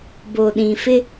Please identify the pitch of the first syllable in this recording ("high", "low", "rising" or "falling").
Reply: low